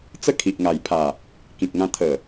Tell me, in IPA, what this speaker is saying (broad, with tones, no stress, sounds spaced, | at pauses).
t͡s ə˥˧ kʰ i˨ ʔ ŋ a˨˩ j pʰ a˨˩ | k ĩ˨ k̚ ŋ ã˧ t̪ʰ ə˨˩